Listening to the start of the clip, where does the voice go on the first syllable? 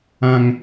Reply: low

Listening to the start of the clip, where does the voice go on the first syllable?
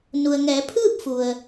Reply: low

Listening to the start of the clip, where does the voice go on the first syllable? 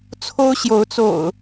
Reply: high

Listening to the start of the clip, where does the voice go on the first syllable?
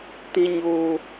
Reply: high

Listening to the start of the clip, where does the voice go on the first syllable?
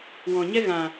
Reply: low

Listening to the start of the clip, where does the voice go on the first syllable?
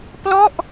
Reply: falling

